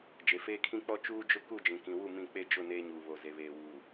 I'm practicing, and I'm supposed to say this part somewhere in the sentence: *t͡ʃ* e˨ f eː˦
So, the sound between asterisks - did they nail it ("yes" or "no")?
no